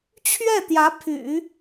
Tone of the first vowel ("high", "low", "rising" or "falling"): falling